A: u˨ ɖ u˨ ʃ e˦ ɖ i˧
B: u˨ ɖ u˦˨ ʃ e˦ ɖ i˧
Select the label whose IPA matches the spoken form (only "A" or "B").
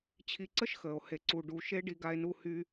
A